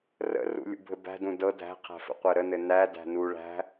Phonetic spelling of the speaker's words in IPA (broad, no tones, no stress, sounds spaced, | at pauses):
r ə̰ r ṵ lʲ ṵ bʱ ɘ b æ̤ d ũ d ɤ dʱ æ̤ qʰ æ̤ f ə̰ qʷ ɜ ɾ ə n ɘ n æ d æ̤ n u ɭ æ̤